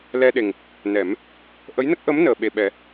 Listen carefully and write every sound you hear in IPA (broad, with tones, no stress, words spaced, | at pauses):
lɛ˧ɗe˨˩ŋ | nɛ˨˩˦m | ʔə˧˥jnə˦˥k̚ ʔə˧˥m nəː˨˩ɓe˨˩ɓɛ˨˩˦